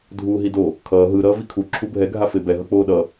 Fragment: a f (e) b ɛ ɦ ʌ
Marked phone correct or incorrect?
correct